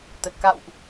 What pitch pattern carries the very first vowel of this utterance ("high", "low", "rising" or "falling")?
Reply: low